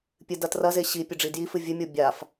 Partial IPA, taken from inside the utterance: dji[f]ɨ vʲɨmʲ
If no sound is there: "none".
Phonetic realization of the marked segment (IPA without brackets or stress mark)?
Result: f